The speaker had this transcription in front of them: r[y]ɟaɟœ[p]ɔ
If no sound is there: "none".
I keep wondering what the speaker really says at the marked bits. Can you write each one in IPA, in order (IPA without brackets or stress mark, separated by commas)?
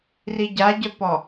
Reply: i, p